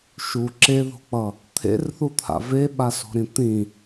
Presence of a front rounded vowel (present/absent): absent